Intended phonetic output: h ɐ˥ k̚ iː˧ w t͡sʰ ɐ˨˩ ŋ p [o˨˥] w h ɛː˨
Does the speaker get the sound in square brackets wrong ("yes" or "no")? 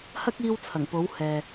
no